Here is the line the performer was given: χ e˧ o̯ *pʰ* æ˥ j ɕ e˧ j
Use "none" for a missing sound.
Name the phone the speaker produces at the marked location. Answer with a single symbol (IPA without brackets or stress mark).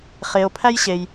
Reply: pʰ